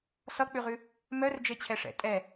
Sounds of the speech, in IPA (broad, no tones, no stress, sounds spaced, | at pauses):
s ʌ k͡p ʉ ʁ ʉ | m œ r d͡ʒ e t͡ɕʰ ɛ ʂ ɛ̰ tʼ ɛ